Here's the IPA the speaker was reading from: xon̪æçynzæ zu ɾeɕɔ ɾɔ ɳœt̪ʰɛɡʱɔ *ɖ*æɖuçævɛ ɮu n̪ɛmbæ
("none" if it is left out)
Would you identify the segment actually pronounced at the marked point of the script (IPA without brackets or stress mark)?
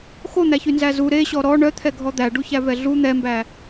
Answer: d̪